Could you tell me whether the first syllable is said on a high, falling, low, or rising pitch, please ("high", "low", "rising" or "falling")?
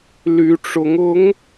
rising